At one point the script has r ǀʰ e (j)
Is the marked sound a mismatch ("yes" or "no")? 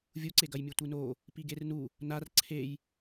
no